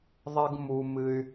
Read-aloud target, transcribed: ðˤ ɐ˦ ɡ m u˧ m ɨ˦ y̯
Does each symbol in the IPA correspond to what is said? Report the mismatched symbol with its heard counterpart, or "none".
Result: none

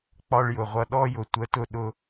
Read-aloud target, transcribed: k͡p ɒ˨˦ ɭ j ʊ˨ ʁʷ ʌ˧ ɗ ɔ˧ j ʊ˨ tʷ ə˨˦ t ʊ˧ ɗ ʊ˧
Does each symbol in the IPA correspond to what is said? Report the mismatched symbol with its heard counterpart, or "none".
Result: ɒ˨˦ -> ɒ˧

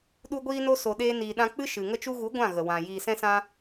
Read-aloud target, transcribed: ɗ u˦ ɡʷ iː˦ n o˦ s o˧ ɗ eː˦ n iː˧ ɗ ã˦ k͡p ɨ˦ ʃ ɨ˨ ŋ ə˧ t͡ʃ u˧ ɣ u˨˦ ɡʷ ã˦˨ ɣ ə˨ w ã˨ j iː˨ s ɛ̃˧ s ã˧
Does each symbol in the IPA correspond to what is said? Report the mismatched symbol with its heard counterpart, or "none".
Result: none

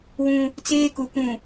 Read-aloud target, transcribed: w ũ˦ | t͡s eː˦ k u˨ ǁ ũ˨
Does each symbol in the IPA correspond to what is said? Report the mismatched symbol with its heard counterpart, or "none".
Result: ǁ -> k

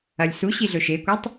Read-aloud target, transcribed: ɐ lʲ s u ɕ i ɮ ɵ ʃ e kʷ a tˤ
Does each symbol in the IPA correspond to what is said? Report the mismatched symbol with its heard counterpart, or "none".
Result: none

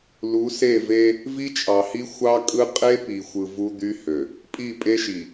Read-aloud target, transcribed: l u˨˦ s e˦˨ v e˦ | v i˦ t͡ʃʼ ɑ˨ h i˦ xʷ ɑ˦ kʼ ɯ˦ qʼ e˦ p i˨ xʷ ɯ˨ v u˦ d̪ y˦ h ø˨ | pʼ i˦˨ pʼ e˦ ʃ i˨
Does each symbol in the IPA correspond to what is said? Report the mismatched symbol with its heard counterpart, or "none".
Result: none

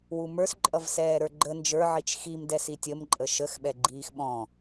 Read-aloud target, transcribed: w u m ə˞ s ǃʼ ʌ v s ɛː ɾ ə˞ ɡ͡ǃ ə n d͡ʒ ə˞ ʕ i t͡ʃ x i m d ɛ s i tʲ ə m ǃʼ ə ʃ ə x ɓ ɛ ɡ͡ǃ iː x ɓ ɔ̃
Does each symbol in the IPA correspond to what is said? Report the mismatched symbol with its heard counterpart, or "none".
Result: none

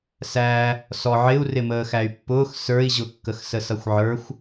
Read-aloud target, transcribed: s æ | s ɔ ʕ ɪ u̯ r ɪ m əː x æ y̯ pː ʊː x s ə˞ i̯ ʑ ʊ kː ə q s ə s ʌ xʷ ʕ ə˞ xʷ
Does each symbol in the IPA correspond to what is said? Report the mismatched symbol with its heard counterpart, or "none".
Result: q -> x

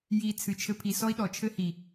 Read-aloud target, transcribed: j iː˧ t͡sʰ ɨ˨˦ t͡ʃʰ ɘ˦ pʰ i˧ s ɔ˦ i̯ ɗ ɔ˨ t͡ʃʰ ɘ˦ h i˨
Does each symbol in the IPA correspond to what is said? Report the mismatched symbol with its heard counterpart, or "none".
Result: none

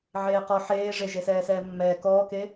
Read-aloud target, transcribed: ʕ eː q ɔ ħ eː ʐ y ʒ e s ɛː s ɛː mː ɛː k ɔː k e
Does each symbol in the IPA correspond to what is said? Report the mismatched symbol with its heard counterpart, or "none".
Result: y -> e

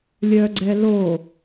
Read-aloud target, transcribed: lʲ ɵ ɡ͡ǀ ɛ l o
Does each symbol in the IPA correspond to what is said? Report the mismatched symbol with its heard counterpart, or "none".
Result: ɵ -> œ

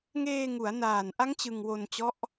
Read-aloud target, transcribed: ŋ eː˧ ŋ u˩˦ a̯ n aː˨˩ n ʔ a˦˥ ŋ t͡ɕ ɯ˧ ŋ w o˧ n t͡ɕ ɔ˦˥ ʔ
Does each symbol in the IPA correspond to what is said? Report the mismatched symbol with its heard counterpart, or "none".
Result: none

